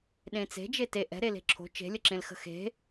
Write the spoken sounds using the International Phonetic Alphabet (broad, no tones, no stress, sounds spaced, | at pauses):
ɗ ẽ t͡s e̤ d͡ʒ e t e ʔ ɛ̤ ɾ e l e̤ ǁʰ o̤ t͡ʃ e̤ lʲ ə ǁ ẽ l x ə̤ x e̤